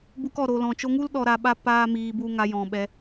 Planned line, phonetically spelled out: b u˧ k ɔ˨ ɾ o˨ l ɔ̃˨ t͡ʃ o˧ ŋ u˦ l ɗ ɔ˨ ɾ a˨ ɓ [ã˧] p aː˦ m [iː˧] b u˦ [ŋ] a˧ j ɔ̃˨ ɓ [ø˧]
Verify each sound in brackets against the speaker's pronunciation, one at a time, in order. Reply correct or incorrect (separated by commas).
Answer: incorrect, correct, correct, incorrect